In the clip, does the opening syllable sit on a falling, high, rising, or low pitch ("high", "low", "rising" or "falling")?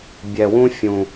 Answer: low